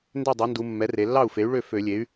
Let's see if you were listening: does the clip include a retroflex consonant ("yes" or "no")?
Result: yes